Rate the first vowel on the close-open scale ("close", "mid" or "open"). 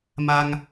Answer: open